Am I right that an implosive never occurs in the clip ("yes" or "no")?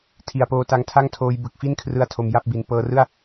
yes